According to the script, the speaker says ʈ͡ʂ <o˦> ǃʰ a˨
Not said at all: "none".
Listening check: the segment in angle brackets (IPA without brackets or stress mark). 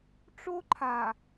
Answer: o˦